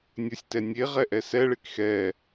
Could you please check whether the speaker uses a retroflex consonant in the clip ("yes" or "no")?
yes